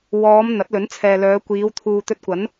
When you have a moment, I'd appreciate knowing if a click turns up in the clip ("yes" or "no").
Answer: no